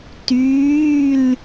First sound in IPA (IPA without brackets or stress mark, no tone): t